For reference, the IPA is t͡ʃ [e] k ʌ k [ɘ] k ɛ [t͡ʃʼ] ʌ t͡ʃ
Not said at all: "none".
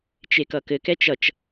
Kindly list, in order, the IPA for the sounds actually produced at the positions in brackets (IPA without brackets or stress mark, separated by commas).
e, ɘ, t͡ʃ